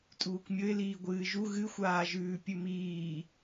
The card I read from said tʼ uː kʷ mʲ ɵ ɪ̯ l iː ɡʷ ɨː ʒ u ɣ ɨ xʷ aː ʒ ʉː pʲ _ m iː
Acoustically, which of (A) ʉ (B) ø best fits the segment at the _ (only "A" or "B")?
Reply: A